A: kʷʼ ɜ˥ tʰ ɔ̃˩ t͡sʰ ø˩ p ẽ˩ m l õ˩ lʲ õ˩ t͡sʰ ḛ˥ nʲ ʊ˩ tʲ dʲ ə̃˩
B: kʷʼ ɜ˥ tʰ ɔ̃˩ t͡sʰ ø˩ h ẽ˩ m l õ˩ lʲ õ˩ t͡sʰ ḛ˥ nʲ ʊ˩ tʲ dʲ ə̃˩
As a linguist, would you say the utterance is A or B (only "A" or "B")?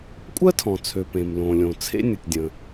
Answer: A